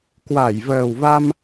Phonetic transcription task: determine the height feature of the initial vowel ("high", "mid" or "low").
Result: low